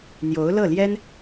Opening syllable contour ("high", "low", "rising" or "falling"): rising